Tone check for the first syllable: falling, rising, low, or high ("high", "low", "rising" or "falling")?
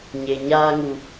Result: low